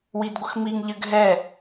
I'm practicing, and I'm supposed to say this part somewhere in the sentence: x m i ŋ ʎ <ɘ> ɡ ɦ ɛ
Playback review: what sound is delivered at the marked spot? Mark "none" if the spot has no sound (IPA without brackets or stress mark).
ɘ